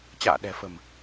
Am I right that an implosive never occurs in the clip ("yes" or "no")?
no